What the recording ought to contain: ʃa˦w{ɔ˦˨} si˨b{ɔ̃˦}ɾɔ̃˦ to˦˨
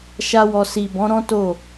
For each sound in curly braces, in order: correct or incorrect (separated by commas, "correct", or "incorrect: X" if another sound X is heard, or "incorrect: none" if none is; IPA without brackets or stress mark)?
incorrect: ɔ˧, incorrect: ɔ̃˨˦